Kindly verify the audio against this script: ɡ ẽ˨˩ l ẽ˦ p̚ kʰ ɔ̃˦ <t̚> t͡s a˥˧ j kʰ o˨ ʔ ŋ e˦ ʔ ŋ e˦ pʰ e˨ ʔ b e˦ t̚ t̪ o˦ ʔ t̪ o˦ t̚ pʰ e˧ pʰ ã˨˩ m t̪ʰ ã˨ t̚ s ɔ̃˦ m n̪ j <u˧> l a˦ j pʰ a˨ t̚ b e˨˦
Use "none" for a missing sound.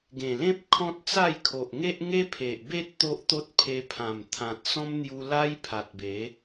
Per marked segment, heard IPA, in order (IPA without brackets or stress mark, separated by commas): t̚, u˧